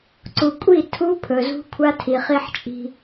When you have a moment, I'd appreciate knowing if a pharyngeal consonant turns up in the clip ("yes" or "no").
yes